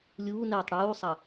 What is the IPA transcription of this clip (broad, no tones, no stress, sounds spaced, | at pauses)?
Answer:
lʲ uː n ɛ tˤ ɽ uː sˤ ɐ